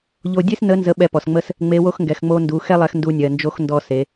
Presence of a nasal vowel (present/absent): absent